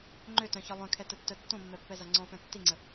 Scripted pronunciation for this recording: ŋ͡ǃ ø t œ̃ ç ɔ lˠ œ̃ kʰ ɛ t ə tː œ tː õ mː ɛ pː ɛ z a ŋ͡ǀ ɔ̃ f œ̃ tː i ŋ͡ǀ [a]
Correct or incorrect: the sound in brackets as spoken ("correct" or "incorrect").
incorrect